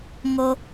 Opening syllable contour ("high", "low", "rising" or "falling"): low